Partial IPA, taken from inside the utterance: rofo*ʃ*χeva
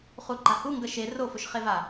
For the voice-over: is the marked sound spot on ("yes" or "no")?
yes